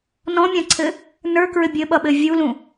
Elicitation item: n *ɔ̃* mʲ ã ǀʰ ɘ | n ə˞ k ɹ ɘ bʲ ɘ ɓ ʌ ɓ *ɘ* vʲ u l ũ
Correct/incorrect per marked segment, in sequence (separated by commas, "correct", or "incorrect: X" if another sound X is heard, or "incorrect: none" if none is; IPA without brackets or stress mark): correct, correct